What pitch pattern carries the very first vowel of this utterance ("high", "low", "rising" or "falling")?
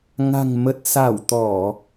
low